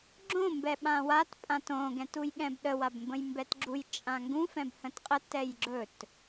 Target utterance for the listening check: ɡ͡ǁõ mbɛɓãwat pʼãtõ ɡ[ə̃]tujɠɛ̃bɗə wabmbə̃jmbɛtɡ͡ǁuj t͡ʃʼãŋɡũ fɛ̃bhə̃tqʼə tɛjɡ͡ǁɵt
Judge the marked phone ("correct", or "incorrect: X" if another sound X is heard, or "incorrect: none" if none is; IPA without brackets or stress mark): incorrect: ɛ̃